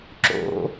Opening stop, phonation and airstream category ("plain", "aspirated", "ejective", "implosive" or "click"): click